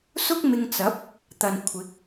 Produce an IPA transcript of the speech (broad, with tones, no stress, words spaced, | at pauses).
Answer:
sʊ˥k̚mɪ˧ŋt͡sɐ˨˥p̚ | t̪ɐ˨nkʷʰɪ˨˥k̚